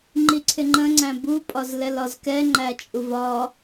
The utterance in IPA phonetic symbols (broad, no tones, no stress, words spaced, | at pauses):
ŋ͡ǃiǀʰɪŋ͡ǃə̃ ŋ͡ǀæ̃bu pʼɒzlɛlɒzkɛ ŋ͡ǃæt͡ʃʼuvɒ